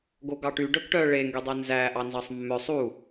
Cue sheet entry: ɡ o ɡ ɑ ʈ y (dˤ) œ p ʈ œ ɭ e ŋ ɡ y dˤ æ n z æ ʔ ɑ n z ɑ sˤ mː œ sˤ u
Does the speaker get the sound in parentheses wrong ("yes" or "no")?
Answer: yes